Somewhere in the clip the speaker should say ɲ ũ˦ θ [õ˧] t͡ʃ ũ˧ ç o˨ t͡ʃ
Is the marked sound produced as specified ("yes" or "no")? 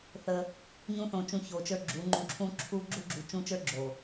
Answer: yes